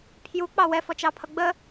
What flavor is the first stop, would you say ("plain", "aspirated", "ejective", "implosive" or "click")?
aspirated